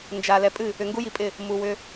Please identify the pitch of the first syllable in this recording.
low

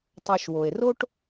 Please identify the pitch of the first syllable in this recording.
low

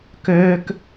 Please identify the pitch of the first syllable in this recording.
high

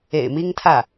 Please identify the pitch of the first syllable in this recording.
low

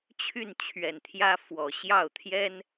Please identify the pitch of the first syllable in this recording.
falling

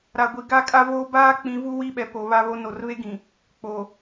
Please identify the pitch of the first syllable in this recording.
low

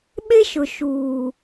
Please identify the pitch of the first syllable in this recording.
high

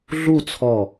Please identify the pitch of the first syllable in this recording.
falling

